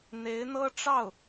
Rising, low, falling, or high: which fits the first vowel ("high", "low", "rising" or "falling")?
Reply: rising